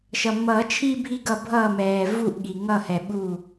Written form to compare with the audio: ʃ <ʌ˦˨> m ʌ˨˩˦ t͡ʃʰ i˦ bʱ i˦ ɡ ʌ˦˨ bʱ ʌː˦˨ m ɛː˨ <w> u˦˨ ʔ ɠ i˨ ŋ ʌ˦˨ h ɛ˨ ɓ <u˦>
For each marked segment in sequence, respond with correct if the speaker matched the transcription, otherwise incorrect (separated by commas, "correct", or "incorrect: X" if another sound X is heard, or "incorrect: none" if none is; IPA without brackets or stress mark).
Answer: incorrect: ʌ˨, incorrect: v, incorrect: u˦˨